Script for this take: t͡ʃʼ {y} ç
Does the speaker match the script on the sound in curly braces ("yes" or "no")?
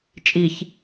no